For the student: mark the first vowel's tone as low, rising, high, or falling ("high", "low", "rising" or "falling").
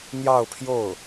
falling